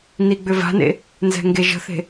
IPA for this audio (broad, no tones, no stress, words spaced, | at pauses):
niɡ͡bʏva̤nḛ | nzɛ̤ŋɡeʒə̤θe̤